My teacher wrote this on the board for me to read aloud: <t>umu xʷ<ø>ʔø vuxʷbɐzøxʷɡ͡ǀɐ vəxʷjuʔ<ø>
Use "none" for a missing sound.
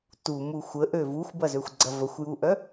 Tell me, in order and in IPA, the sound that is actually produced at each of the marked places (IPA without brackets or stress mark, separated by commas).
t, ə, œ